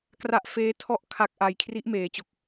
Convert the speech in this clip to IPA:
kra˦˥ʔfeː˦˥ tʰɔ˥˩ʔkʰa˦˥k̚ʔa˧j kʰri˦˥ʔmeː˩˦t͡ɕo˨˩k̚

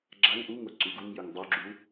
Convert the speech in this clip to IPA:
ɡ͡ǁaŋ ʔuŋo ǀyɡuŋjyŋ dˤyɡ͡ǁu

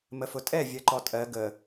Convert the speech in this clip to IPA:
məfʊtʼɛ vʲɜǃɔtʼɜ ɡə

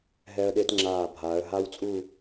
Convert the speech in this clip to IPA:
ɦɛ˧ə̯ɗe˧tŋ͡ǁaː˧˩bʱaː˩˧ə̯ ɦaː˥wt͡sʼu˥˧

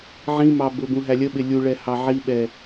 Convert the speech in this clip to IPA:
ʕĩmɑ bʊbũ ɦælʲəɓɪ lʲuɭɛ hɑʕiɓɛ

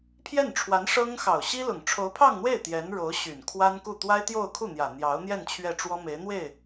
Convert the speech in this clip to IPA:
pʰjɛ˥˩nʈ͡ʂʰwa˧˥n ʂɤ˥ŋ xɑ˨˩ʊ̯ɕi˥lʊ˨˩ŋ ʈ͡ʂʰo˧˥ʊ̯pʰɑ˥˧ŋn̪we˥˩ɪ̯ t̪jɛ˧˥nɻo˧˥ʊ̯ɕy˨˩n kʰwa˥nku˥˩ t̪wa˥ɪ̯t̪jo˥˧ʊ̯kʰu˥˩ n̪jä˨˩n̪jɑ˧˥ʊ̯n̪jɛ˥˧n t͡ɕʰɥɛ˥˩ʈ͡ʂwɔ˥me˧˥ɪ̯n̪we˥˩ɪ̯

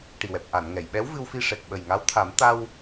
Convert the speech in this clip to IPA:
ʈi˨˩wɛ˨˩p̚ʔa˨˩˨nŋɛ˨˩˨j ɓɛ˧˥wvɨ˧wfi˧ ʂɛ˨˩k̚ɓə˨˩jŋa˧˥wt̪ʰa˨˩˦m t̪a˧w

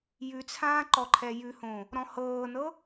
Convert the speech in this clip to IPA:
jʉt͡sʰãː ǃɔǃʰɛjʉhõ | ɾɔ̃hɤːnɤ

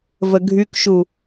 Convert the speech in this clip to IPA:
vəɡʱykʃu

